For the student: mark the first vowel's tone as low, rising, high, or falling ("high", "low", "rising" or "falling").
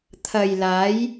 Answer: low